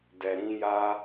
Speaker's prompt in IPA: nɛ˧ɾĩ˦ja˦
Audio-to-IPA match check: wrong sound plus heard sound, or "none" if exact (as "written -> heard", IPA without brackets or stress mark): n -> d